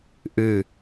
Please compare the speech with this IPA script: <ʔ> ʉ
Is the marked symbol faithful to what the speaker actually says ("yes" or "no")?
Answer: yes